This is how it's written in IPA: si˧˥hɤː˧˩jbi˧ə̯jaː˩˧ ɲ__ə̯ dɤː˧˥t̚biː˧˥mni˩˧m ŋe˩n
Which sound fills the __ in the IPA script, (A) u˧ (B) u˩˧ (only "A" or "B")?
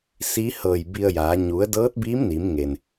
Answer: B